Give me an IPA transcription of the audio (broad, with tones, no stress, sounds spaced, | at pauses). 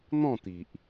n̪ ɔ̃˥˧ t̪ i˨ ʔ